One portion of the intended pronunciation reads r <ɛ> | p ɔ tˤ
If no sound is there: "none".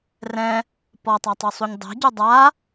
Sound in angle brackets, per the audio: ɛ̃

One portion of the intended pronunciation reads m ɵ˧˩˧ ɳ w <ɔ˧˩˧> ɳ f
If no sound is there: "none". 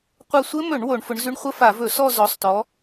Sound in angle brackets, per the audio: o˧˩˧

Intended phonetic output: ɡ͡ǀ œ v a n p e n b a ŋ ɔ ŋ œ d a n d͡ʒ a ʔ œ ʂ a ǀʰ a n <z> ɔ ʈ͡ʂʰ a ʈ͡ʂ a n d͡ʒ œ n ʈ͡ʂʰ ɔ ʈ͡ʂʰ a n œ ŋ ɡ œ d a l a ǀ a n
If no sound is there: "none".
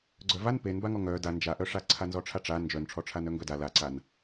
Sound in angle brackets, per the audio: z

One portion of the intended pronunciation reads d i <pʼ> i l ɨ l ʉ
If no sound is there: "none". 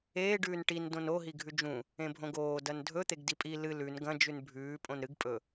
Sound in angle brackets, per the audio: pʼ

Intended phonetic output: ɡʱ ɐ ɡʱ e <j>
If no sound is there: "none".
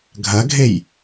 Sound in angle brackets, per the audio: j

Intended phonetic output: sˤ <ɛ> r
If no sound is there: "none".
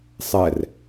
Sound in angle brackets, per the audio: ɛ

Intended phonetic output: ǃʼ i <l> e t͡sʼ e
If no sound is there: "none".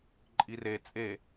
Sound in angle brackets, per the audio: r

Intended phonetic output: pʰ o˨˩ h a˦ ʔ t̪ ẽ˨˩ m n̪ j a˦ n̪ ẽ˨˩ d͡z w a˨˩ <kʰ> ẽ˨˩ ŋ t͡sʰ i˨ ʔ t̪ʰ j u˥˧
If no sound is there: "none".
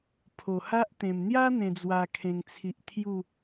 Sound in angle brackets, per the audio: kʰ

